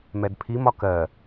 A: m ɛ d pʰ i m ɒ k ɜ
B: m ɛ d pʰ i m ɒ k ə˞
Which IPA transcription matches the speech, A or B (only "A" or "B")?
A